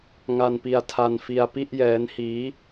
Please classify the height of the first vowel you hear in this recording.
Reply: low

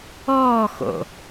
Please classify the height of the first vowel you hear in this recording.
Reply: mid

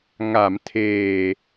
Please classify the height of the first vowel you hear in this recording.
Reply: low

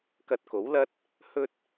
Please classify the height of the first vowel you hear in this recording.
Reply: low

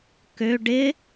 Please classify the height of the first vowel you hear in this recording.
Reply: mid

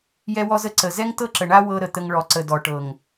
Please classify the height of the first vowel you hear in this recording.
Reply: mid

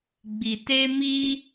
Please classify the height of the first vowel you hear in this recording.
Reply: high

